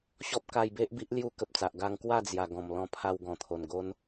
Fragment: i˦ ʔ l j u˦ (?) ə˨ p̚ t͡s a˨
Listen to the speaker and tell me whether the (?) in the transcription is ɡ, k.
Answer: k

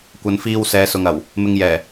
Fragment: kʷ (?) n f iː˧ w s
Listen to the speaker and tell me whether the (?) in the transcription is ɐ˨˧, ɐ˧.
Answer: ɐ˨˧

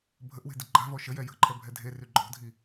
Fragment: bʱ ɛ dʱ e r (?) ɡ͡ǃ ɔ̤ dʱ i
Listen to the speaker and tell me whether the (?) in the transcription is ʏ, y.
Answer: y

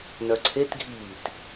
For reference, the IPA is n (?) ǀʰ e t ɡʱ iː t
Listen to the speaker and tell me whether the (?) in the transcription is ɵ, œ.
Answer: œ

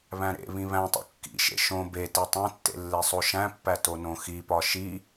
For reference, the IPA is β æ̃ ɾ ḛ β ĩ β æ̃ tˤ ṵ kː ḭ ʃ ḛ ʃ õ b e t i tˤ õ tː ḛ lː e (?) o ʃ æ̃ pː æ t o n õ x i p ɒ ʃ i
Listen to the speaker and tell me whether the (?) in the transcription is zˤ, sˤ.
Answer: sˤ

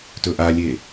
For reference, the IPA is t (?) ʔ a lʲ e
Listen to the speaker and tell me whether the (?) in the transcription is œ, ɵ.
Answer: ɵ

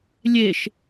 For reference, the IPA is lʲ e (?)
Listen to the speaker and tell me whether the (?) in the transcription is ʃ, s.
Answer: ʃ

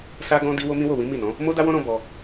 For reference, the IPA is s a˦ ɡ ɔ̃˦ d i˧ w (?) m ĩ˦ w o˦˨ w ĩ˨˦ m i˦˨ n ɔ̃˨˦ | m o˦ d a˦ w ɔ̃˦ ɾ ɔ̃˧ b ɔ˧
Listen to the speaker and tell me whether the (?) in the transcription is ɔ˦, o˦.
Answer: o˦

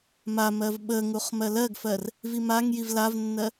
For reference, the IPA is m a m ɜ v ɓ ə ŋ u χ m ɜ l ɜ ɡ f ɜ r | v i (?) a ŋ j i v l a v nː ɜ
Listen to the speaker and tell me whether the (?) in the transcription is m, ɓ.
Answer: m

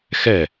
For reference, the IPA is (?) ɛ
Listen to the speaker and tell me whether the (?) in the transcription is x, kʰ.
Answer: x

